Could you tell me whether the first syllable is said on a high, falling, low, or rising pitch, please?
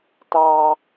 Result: high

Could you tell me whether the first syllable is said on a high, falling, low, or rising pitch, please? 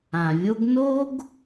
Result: low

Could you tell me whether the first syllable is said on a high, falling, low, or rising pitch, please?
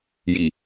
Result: low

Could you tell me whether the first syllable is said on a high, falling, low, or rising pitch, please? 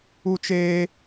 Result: high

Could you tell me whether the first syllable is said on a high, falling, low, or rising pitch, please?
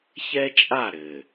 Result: high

